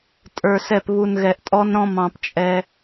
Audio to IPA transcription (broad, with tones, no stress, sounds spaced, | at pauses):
tʼ ə˞˨ s ɛ˦˨ p β u˨ n ɣ ɛ˨ ʔ tʼ ɔ˦ n ɾ ɔ̃˦ m ɑ̃˨ p t͡ʃʼ ɛ˦